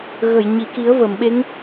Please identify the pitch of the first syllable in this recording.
low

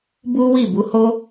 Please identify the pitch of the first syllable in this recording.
high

